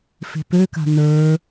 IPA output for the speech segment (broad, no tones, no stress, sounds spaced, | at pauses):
f e̤ p ø k a̤ n ə˞